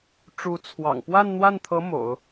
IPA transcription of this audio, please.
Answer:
ʈ͡ʂ u˧˥ t͡sʰ w ɑ̰˨˩ ŋ p w a˥˧ n n̪ w a˥˩ n t̪ʰ ɤ˧˥ m o̰˨˩˦ ʊ̯

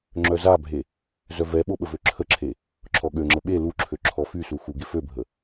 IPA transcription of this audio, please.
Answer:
ŋ͡ǁ œ z a bʱ e | z œ v ɛ ɓ o ɓ ə v ø ǁʰ ə ǁʰ e | ǁʰ ɔ ɠ ø ŋ͡ǁ ə ɓ e l u ǁʰ ø ǁʰ ɔ f y s u x u ɡ e f ø bʱ ə

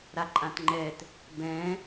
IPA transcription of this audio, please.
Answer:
ɾ a ǃʼ ã t ŋ͡ǃ ɛ t | b ɛ̃

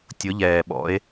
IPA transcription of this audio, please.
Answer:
tʲ ʊ˨˥ ʎ ɛː˨˩ ɓ ɔ̰˨˥ e̯

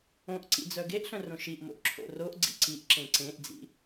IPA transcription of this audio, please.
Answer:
õ ʔ ǀ ḭ d͡z œ ɡ e ʔ ɬ œ̃ r õ ʃ i ʔ m o̰ ʔ ǁʰ o̰ r o ʔ ɡ͡ǀ ḭ ǀ i ʔ ǁ ẽ ǀ ẽ ʔ d͡z ḭ

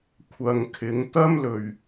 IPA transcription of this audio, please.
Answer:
kʷʰ ɐ˨ ŋ kʰ ɪ˨˥ ŋ t̪ ɐ˥ m l ɵ˨˩ ɥ

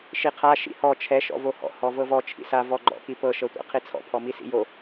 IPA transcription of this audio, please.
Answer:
ʃ i qʰ a ʃ ḭ h ɔ t͡ʃʰ ɛ ʃ ɔ̰ v o h ɔ̰ h ɔ v ɤ v ɔ t͡ʃʰ ḭ s a v ɔ ɡ͡ǃ ɔ̰ k i p ɤ ʃ ɤ tʷ a̰ qʰ i t͡sʰ ɔ̰ pʰ ɔ m i s ḭ j o

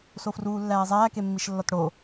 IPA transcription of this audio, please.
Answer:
s o f r uː lː æː zˤ æː k e mː i ʃ lː ɒ t ɽ o

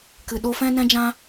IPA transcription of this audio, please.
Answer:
k ɨ˨ ɗ o˧ f ɛ̃˦ n ɛ̃˦ d͡ʒ ã˦

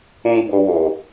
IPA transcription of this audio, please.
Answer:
ũ˦ ɡ͡b o˧ w o˨

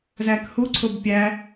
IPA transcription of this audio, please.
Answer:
z æ k h u ǀʰ o b pʲ æ

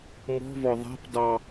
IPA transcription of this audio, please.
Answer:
m ɔ̤ v ɔ ðˤ æ̤ p d ɑ

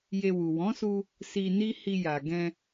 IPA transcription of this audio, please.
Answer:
j e˧ w u˨ w ɔ̃˨˦ s u˧ | s i˧ n i˦ h i˧ j a˨ ɡ ɛ̃˧

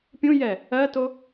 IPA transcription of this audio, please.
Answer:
pʲ ũ j ɛ | ɜ t o

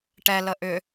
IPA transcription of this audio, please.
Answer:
ʈ ɛ l ə ʔ ʏ

